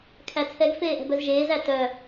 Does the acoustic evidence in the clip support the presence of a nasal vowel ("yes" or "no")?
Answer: no